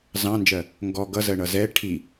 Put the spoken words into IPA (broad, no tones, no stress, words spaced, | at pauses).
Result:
zɑ̃nd͡ʒɜ | ŋɡɔ ɡʌzɜɳʌ zɛ ʈʰi